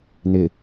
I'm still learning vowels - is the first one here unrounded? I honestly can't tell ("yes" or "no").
yes